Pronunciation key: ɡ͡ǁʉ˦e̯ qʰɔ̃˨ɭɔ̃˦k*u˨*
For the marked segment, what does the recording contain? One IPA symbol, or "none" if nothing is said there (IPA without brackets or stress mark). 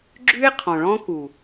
u˨